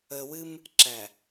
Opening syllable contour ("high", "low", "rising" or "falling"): low